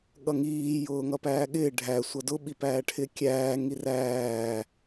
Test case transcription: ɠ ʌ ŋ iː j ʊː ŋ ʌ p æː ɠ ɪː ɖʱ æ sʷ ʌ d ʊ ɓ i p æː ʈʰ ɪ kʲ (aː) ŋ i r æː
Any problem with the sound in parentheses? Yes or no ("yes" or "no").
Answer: yes